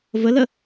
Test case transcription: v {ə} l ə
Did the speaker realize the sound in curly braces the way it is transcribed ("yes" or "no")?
yes